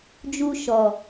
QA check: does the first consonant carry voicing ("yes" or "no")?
yes